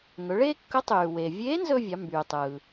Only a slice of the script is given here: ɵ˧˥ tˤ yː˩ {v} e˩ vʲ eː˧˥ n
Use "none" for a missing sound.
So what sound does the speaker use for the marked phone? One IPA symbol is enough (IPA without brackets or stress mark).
w